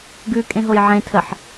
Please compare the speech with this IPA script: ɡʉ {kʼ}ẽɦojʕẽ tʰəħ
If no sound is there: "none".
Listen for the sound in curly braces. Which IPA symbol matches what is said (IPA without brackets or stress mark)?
kʼ